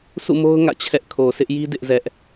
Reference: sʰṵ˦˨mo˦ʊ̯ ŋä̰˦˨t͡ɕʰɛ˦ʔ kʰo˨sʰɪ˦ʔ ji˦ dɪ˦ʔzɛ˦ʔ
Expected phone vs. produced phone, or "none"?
none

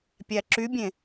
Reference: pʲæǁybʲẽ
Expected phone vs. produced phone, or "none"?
none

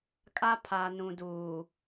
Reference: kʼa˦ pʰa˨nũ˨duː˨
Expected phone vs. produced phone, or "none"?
none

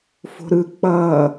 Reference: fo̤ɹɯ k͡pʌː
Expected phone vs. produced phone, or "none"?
ɹ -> ɾ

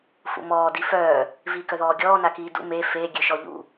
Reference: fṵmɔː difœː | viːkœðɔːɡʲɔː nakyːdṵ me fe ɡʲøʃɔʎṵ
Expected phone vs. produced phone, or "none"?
yː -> iː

